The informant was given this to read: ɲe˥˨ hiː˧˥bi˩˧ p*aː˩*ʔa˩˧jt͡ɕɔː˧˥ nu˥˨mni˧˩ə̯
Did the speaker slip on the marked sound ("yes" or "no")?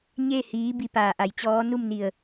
no